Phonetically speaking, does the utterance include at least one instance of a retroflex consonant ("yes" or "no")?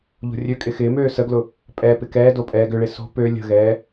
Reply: yes